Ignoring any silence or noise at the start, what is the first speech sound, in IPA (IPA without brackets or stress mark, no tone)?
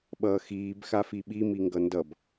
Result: ɓ